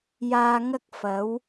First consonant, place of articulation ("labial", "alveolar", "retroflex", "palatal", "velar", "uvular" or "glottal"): palatal